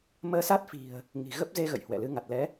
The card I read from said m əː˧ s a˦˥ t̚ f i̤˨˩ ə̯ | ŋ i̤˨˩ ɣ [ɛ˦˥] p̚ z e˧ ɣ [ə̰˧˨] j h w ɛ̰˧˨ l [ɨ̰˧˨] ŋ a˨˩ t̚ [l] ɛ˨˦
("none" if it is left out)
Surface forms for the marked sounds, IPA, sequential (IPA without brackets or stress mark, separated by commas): ə˦˥, ə̰˧˨, ɨ˨˦, l